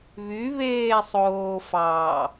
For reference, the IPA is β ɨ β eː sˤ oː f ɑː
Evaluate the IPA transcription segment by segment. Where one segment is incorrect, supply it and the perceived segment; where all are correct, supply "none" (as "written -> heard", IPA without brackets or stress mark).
ɨ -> y